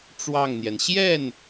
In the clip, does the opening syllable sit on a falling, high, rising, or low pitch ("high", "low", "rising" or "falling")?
falling